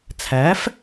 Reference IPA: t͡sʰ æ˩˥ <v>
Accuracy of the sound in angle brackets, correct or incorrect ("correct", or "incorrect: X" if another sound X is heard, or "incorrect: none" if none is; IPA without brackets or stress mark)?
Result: incorrect: f